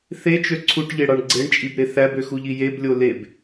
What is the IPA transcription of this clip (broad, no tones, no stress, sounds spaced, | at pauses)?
θ e t͡ʃ ø ǀʰ u ʈ ʎ e ɽ ɑ ɳ ɡ͡ǀ e ɳ t͡ʃʼ i b ɾ e θ æ b ø x u ʎ i j e b lʲ o l e b